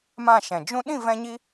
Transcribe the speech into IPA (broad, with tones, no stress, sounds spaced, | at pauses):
m ã˦˨ ʃ ɛ̃˨ d͡ʒ ũ˦ ɗ ĩ˦˨ v ɛ̃˧ ɲ i˧